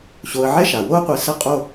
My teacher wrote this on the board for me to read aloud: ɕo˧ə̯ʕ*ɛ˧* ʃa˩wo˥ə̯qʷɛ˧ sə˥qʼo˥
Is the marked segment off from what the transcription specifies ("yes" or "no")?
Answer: yes